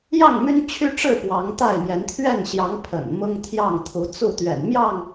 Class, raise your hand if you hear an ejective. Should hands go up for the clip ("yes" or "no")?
no